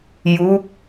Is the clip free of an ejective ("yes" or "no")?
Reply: yes